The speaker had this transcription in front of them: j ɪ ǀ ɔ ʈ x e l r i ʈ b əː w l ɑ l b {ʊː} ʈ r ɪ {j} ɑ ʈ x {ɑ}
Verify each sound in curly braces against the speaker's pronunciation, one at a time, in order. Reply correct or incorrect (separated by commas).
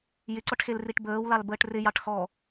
incorrect, correct, incorrect